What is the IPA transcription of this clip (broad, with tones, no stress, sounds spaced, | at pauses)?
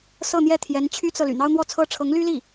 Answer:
s ɤ˥˧ n̪ j ɛ˥˩ t̪ʰ j ɛ˧˥ n t͡ɕʰ y˥ t͡s ɤ˨ l y̰˨˩ n̪ ɑ˥ ʊ̯ n̪ w ɔ˥˩ t͡sʰ ɤ˥ ʈ͡ʂʰ ɤ˧˥ ŋ l y˥ l i˥˩